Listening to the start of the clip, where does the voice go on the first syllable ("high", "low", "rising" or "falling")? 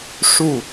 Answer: falling